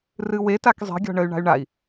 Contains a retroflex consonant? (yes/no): yes